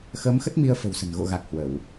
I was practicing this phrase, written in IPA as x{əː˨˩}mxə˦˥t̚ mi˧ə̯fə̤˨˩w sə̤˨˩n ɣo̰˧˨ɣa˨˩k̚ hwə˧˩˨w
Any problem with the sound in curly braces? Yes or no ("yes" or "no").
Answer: yes